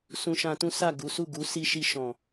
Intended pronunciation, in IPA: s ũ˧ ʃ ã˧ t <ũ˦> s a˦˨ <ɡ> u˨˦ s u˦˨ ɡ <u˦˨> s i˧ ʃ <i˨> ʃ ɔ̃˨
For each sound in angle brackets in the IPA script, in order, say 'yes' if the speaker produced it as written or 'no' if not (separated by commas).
yes, yes, no, no